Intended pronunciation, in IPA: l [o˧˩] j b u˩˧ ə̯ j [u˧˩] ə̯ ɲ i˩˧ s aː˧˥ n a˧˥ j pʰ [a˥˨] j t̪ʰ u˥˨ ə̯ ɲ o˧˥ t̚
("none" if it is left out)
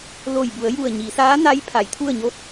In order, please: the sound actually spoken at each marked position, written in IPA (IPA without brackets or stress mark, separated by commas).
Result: o˧˩, u˧˩, a˩˧